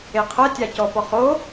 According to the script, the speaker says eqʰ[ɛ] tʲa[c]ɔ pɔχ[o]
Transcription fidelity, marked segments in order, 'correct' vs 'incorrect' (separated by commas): correct, correct, correct